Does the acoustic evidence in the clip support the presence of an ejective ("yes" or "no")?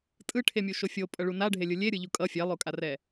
yes